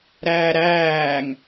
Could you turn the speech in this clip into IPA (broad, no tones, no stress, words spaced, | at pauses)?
ɾæːɾæːŋ